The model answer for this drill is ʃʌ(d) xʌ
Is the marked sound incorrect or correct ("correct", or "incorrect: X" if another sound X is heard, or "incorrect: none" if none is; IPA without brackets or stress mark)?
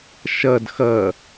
correct